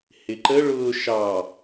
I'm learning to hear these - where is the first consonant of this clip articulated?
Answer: throat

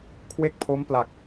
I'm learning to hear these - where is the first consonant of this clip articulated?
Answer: velum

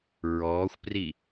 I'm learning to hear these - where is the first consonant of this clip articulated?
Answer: tongue tip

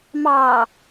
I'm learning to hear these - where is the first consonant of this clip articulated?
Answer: lips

